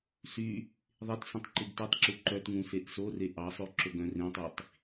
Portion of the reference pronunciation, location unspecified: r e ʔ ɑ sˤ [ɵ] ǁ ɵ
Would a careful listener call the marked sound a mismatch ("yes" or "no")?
yes